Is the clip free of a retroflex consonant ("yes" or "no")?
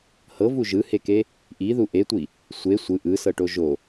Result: no